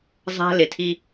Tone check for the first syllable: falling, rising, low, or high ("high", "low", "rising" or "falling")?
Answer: high